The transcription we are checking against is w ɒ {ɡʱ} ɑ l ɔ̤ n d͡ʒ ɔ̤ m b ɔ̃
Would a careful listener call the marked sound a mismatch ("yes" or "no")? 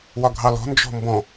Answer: no